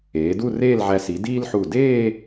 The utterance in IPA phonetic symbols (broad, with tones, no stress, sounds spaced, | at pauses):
eː˩˧ d u˥˧ r eː˥˧ l ʕ æ˧ s i˩˧ d iː˥ l ħ u˧˩ d eː˥˧